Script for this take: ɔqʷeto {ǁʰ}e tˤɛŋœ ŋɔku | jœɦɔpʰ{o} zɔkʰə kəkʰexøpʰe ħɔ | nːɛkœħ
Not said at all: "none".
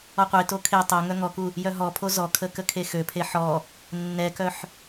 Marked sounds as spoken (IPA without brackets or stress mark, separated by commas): kʰ, o